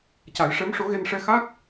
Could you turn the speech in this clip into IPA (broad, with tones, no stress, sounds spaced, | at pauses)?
c a˨˩˦ j ʂ ɛ˧˥ m ʂ o˧˥ ɣ e˧ n ʂ ɛ˧ x a˦˥ k̚